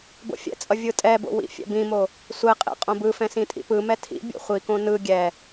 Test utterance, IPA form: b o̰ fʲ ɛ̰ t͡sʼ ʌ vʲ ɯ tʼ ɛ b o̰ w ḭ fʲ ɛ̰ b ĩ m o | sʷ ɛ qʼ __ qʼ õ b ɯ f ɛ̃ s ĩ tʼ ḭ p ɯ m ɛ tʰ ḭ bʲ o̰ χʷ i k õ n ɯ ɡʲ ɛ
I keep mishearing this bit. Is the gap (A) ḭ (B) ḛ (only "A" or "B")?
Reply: B